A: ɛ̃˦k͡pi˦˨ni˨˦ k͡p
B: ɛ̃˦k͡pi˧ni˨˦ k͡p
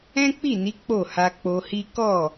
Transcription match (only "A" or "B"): A